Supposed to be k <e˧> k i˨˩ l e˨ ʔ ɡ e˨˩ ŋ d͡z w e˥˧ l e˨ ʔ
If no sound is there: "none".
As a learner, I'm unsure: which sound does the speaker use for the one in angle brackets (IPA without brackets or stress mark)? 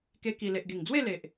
e˧